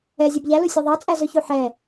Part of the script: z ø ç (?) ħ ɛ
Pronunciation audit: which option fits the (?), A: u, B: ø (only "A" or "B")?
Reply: A